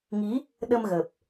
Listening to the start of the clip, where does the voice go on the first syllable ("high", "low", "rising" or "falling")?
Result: rising